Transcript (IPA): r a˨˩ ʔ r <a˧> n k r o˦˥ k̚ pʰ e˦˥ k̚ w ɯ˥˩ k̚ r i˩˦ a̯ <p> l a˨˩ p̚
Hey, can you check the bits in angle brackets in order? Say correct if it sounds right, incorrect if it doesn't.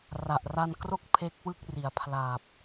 correct, incorrect: pʰ

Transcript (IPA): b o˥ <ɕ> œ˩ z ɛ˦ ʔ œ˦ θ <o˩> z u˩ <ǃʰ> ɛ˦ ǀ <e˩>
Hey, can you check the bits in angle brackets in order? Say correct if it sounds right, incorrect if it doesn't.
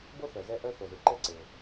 incorrect: θ, correct, incorrect: ǃ, correct

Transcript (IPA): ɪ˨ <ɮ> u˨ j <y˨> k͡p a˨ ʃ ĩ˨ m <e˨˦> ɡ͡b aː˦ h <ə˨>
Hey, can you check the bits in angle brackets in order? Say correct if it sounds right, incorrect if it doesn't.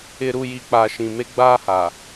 incorrect: ɾ, incorrect: i˨, incorrect: e˦, incorrect: a˨

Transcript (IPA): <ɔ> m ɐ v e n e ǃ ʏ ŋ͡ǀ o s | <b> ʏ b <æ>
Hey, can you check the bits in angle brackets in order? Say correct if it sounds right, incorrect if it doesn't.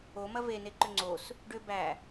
incorrect: o, incorrect: ɖ, correct

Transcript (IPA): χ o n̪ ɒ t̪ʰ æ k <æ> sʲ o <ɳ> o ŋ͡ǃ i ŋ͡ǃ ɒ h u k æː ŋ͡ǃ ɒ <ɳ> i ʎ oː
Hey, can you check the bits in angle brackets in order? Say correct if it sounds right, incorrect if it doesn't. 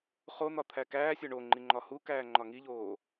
incorrect: æː, correct, incorrect: ŋ

